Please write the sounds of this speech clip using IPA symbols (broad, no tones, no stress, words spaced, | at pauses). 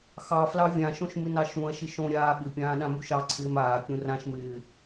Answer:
xɑflɑ vʲãʃõʃ mɪnɑʃũɐ̯ʃɪ ʃõɾʲaː ɓɪpʲãː ɗãmuʃɑǀʰɪːm aːkʲũ rãʃmɪː